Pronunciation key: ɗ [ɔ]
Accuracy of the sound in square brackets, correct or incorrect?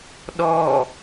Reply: correct